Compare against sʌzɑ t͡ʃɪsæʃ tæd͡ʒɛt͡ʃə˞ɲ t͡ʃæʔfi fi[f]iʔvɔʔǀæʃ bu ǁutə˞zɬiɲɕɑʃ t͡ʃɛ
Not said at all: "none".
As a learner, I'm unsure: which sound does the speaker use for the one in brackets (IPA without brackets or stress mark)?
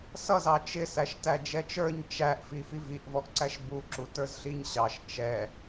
v